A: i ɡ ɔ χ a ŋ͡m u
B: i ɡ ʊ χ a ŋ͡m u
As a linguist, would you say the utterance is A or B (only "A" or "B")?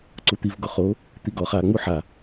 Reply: A